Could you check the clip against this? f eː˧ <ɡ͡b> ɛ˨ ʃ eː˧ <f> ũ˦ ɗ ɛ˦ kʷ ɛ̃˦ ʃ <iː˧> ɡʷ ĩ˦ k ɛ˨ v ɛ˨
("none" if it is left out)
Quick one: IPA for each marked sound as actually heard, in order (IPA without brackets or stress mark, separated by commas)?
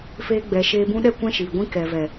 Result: ɡ͡b, b, iː˨